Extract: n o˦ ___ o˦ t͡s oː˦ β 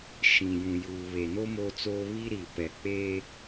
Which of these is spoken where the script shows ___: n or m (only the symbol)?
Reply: m